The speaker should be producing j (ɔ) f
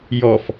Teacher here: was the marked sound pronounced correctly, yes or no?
yes